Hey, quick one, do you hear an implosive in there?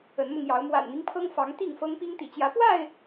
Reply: no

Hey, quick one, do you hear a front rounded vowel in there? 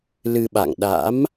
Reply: no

